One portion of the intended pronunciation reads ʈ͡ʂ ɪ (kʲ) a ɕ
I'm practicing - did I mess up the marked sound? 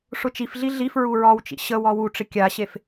no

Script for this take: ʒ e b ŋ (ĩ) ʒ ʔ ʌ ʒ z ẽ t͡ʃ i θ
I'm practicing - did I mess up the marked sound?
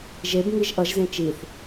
yes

